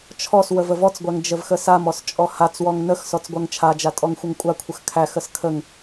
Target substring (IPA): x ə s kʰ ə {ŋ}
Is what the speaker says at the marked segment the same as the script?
yes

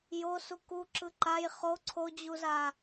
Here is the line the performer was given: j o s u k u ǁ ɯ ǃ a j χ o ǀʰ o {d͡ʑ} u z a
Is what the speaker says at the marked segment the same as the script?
yes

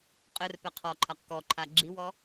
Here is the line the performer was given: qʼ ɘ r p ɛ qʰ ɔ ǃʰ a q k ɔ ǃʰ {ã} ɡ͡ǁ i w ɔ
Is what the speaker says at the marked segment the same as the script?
no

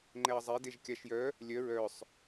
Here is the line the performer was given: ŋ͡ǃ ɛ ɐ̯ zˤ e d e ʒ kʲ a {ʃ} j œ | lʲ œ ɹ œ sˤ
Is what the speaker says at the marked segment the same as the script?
yes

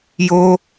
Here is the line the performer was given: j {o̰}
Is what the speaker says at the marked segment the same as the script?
no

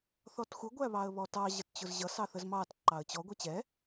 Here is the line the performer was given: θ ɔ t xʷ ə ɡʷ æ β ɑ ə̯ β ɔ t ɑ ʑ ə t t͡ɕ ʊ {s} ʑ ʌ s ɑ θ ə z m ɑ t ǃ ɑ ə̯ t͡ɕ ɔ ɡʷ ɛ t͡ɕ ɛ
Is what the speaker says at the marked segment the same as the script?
no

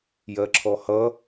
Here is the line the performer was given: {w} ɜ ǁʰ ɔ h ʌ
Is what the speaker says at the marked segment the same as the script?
no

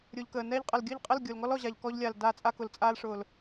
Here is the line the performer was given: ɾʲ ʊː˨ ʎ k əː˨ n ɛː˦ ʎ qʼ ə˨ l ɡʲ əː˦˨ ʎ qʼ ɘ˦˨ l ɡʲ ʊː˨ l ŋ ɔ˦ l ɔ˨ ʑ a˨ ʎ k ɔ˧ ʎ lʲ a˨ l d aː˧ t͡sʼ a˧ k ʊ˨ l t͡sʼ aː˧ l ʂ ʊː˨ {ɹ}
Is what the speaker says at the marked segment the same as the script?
no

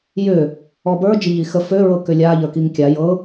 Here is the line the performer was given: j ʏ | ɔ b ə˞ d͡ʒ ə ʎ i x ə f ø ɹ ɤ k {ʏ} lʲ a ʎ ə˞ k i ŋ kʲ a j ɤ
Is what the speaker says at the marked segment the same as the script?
yes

